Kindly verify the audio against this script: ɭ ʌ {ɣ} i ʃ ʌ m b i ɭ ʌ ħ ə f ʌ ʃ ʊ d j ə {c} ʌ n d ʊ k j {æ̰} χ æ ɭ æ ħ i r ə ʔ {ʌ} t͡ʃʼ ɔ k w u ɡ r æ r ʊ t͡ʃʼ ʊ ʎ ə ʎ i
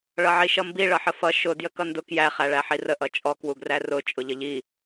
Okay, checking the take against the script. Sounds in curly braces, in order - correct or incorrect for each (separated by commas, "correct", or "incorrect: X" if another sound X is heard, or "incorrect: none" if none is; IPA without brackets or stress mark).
incorrect: ʕ, incorrect: k, incorrect: æ, correct